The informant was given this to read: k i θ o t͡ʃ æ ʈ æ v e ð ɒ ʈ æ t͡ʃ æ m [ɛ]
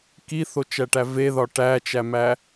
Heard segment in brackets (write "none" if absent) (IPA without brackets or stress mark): æ